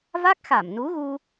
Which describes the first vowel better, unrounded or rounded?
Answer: unrounded